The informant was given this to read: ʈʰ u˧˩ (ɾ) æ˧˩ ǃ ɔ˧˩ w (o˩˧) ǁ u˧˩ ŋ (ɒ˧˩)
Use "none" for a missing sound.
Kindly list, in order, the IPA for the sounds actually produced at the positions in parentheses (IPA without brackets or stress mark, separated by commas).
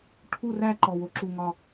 r, o˩˧, ɒ˧˩